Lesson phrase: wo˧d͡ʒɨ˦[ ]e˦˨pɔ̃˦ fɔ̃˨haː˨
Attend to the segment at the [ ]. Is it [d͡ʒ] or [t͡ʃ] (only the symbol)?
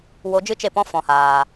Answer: t͡ʃ